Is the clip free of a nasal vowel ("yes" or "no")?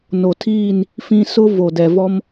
no